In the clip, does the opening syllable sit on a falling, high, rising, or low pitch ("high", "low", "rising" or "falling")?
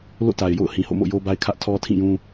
falling